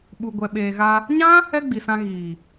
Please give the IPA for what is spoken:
ɓ u˨ ɡʷ ɛ˨ ɓ eː˨ ɣ a˧ | ɲ ã˦ | ɛ˦ ɡ͡b i˨ s ã˧ ɣ iː˨

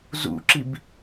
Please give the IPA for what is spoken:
z ṵ ǁ i b

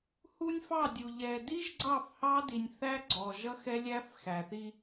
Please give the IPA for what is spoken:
h u˦ nʲ f ɑ˦˨ dʲ u˨ ʎ ɛ˨ d i˦ ʒ ɡ͡ǀ ɑ˦˨ f h ɑ˦ d i˨ nʲ θ æ˦ ɡ͡ǀ ɔ˨ ʒ ʌ˦ x ɛ˦ lʲ æ˦ f x æ˨ θ i˦

